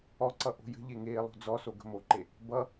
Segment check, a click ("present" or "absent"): present